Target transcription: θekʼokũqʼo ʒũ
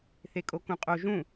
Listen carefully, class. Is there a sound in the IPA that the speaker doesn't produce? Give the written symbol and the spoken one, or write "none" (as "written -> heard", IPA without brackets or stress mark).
none